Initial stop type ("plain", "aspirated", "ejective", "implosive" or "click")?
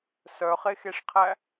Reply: aspirated